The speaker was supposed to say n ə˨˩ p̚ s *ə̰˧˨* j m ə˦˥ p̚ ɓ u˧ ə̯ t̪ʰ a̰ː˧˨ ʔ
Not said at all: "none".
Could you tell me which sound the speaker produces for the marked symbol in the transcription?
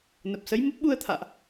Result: ə˨˦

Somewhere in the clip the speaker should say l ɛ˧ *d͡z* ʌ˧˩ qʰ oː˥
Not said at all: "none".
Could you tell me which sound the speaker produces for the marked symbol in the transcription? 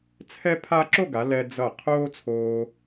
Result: d͡z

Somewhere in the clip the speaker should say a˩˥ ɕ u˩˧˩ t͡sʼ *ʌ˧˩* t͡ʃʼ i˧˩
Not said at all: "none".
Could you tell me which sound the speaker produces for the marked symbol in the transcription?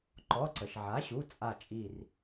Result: a˧˩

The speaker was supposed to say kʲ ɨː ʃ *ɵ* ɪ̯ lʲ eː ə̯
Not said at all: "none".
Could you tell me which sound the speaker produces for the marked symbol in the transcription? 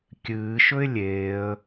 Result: ɵ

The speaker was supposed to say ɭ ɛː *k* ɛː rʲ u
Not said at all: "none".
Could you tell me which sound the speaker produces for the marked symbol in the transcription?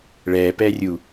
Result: p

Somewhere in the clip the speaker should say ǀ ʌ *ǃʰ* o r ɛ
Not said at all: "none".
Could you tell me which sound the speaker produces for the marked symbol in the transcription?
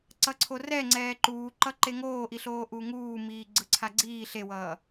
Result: ǀʰ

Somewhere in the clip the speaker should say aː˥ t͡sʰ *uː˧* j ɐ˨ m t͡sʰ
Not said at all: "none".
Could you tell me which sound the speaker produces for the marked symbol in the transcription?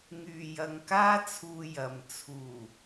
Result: uː˧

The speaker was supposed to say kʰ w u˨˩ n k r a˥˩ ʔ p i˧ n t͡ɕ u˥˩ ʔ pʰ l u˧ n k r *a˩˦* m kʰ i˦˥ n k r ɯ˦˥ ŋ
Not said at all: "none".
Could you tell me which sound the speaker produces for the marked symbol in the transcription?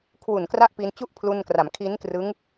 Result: a˩˦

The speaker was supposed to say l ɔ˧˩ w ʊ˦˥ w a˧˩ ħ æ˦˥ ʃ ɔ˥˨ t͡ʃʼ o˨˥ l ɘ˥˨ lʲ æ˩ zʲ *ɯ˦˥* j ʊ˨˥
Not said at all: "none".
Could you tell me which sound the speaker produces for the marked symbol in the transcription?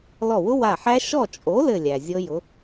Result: ɤ˦˥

